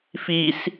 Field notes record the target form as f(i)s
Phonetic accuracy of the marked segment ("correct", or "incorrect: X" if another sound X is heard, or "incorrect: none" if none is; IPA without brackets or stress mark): correct